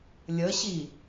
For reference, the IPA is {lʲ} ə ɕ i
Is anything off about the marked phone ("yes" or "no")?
no